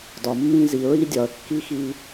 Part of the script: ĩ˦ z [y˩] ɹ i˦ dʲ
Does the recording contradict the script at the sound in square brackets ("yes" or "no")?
yes